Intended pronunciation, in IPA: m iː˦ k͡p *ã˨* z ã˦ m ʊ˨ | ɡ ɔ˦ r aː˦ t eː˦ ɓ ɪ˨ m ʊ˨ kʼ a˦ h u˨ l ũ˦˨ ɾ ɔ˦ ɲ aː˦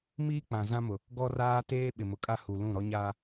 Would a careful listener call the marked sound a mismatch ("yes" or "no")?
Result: no